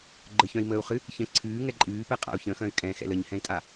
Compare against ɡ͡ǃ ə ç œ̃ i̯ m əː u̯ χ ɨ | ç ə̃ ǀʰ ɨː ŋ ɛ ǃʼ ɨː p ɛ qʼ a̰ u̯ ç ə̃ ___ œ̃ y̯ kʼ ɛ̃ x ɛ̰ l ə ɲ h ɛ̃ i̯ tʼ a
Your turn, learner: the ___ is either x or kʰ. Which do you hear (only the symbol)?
x